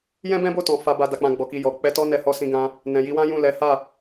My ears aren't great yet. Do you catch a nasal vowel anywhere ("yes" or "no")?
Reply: yes